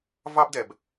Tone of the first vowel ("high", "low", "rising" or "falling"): high